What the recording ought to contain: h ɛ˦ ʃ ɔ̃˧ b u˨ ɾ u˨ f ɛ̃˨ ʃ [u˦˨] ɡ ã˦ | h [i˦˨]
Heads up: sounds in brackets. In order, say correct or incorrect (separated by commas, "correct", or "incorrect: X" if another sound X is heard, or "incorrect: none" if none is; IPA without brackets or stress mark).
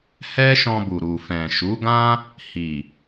incorrect: u˨˦, incorrect: i˨